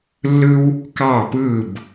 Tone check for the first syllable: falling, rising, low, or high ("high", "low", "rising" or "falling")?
high